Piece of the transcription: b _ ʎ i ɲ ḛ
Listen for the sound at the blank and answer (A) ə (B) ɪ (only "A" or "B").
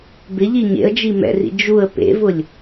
B